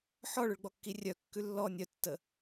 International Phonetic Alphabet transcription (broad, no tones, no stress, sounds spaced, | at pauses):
ħ ɔ ɭ ʏ ɭ ɡ͡b ɔ kː i rʲ œ kː ʉ lː ɔ nʲ œ tː ə